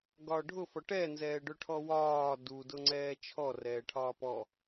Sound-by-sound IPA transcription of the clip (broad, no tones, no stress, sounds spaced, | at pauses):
ɡ ɒː ɖʱ ʊ f ɔ ʈ ɛ n z ɛː ɖ ʊ ʈʰ ɔ w ɒː d u d ʊ ŋ͡ǀ ɛː t͡ʃʰ ɔ r ɛː ʈʰ ɒː p ɔ